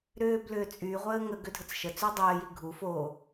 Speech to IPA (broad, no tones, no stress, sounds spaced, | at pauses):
ɾ ʏː b l ʏː t͡sʼ y ʁʷ əː ŋ ə ɡ ʏ dʱ ə t͡s ʃ ə t͡s y dˤ əː j i ɡʱ u f o